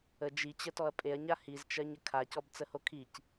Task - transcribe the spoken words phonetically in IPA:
ə d͡ʒ i t͡ɕ ə t ɔ ɐ̯ pʼ e ɐ̯ ɲ a h i z t͡ʃ ɜ ɲ ə kʰ a c ɔ b t͡s ə h o kʰ i c

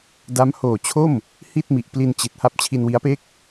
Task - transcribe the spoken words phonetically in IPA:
d a˦˥ m h oː˨˩ t͡ɕʰ o˥˩ m | h i˥˩ t̚ m i˨˩ ʔ p l i˧ n t͡ɕ i˨˩ t̚ h a˦˥ p̚ t͡ɕʰ i˧ n w i˦˥ a̯ p e˥˩ k̚

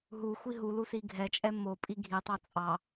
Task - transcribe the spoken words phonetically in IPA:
ɦ u xʷ i ɦ u l u s i ɡʱ ɛ t͡ʃʼ ɛ m o pʼ i ɡʱ i tˤ ɑ t͡sʼ ɑ

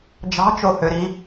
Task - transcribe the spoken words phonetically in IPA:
d͡ʒ ɑ̤ t͡ʃ o h ø ɾ i

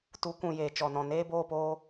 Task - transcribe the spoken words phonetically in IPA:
t u˨˦ kʷ ũ˨ j eː˨ t͡ʃ ɔ˨ n ɔ̃˨ n eː˦ b oː˦˨ p oː˧

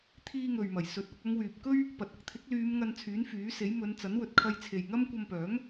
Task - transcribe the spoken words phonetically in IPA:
t̪ʰ iː˧ ŋ ɵ˨ ɥ m ɐ˨˩ j s ɵ˨˥ t̚ ɐ˧ k̚ ɐ˨˧ ŋ w yː˨ p̚ k ɵ˥ ɥ | p ɐ˨ t̚ ɐ˧ k̚ t̪ʰ ɪ˨˥ k̚ l yː˨˧ m ŋ ɐ˧ n t͡sʰ yː˨˥ n f yː˨˥ s e˨˥ j m ɵ˨˧ n t͡s ɐ˨˥ n w ɵ˨ t̚ kʰ ɐ˧ j t͡sʰ e˨ j ŋ ɐ˥ m kʷ ɐ˧ m p œː˨˥ ŋ

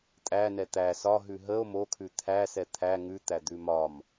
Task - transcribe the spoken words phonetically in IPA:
tʼ æ n ɛ t̪ æ s ɒ ɦ ʉ ɦ ə o̯ m o kʰ ʉ t̪ʰ æ s ɛ t̪ʰ æ ŋ ʉ t̪ æ d̪ ʉ m ɒ m

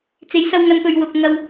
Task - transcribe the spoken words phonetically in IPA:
t͡s e˨˧ j s ɐ˧ w ŋ ɐ˧ n p ɵ˨ ɥ w ʊ˨ k̚ ŋ ɐ˧ w

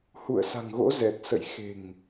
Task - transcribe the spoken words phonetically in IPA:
h ṵ˧˨ ə̯ s a̤˨˩ ŋ ɣ o̰˧˥ z ɛ˨˩ t̚ s ə̰˧˨ j x e̤˨˩ ŋ

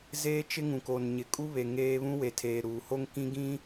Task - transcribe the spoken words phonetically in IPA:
z eː˦ t͡ʃ ɪ˦ ŋ ũ˨ k o˨ n ɲ ɪ˨ kʼ u˦ β e˨ ŋ eː˦ β ũ˦ w e˨ tʰ eː˨ ɾ uː˨ h o˦ ŋ k ĩ˦ ɡ ĩ˦

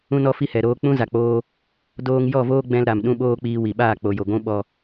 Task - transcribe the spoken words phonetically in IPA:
ũ˦ n ɔ˦ f i˦ h ɛ˨ ɾ oː˧ k͡p ũ˦ z a˨ k͡p oː˧ | d oː˧ ŋ j ɔ˦˨ v oː˦ ɡ͡b ɛ̃˧ l ɾ a˨ m ɗ ũ˦ ɓ oː˦ k͡p iː˧ w i˨ ɓ aː˦˨ k͡p o˨ j o˨ ɡʷ ũ˦ ɓ ɔ˧

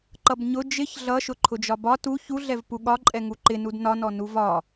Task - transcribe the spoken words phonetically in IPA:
ǃ ʌ b ɲ ʊ d͡ʒ ɪ ç ɮ ʌ ʃ ʊ ǃʰ ʊ d͡ʒ ɒ b ɒ t u ç u ɮ ɛ v p u ɠ ɒ ǃʼ ɛ ŋ u ǃ ɪ n u d n ɒ n ɔ n u v ɒ

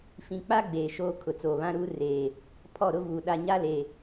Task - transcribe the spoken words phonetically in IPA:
f ĩ˨ k͡p a˦ ɡ͡b eː˨ ʃ oː˦ kʰ ʊ˨ t͡s oː˨ β ã˦ ɾ uː˦ r eː˨ | pʰ ɔ˦˨ ɾ ʊ˦ v uː˨ ɗ a˨ ɲ a˦ l eː˨

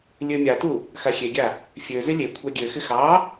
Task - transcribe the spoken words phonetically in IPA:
lʲ ø mʲ a t u | x a xʲ e ɡʲ a | fʲ ø z ɪ lʲ e kʷʰ a ɡʲ ø x ɪ x ɑ

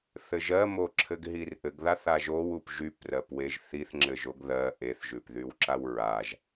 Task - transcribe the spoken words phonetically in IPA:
θ ɘ ʒ ɜ m o ǁʰ ɘ ɡ ɦ i r ʔ ɘ ɡ ð a θ a ʒ o w u p ʒ y p r ɜ p w e ʒ θ i θ ŋ͡ǁ ɘ ʒ o ɡ ð ɜ ʔ e θ ʒ ʉ p ð y w ǁ a w ɹ a ʒ

